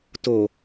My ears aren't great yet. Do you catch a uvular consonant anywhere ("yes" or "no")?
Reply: no